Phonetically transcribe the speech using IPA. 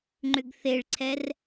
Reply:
ŋ͡ǃ ʏ ɡ θ e ɭ ǀʰ ɛ r

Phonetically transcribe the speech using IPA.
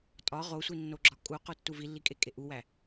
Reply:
tʼ ɒ ʁ o sʷ i nː o ɡ͡ǁ ɒ kʼ u q u tː u v i lː i kʼ e kʼ e ʔ u w æ

